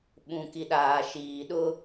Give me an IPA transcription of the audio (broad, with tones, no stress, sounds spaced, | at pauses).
ɓ ũ˨ k i˨ ɗ aː˨ ʃ iː˨ ɗ ʊ˦